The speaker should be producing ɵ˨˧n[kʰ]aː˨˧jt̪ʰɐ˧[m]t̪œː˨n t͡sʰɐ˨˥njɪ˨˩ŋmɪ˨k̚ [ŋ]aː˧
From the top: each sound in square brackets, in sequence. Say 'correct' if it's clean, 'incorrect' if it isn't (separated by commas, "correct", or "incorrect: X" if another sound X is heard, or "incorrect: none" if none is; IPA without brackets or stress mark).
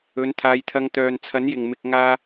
incorrect: t̪ʰ, incorrect: ŋ, correct